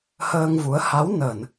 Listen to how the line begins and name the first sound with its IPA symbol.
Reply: h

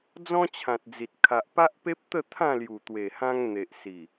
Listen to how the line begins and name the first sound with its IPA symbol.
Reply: d͡z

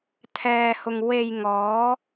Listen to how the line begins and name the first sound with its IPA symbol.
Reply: t̪ʰ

